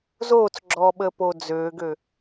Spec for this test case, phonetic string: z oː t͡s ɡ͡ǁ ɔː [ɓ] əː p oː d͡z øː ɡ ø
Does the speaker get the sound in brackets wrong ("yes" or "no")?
no